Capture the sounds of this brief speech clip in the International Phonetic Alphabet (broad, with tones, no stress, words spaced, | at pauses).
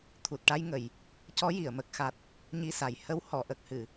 t̪ʰu˨˩t̚ʈa˧jŋə˨˩˨j | cɔ˧˥ji˨˩˨ə̯ mə˨˩k̚xa˨˩t̚ | ɲi˧sa˨˩j hə˧˥whɔ˨˩˨ ʔə˨˩k̚hɨ˨˩˨